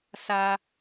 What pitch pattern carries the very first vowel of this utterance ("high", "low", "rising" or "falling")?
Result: high